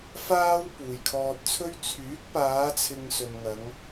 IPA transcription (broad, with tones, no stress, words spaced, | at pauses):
faː˥w puː˨jkʰɔː˧t̚t͡sʰɵ˥ɥ t͡sʰyː˨˥k̚paː˨˧t͡sʰɪ˨ŋ sɵ˨nŋɐ˨˧ŋ